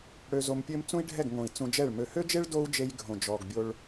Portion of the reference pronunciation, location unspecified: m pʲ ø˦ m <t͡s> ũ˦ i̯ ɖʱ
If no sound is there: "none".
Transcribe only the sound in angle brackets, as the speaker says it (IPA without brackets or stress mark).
t͡s